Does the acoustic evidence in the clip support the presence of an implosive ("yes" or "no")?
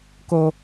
no